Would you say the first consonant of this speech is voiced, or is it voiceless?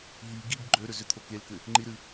voiced